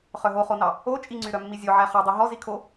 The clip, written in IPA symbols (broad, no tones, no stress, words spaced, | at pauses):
χœɦoχonɑ | o t͡ʃʼi ŋ͡ǀyɾœmːizʲo ʕæχœdˤi ɦɔ zikʰo